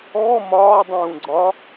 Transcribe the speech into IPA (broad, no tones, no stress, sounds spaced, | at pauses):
ɔː m ɒː dˤ ũː ɡ͡ǀ ɒ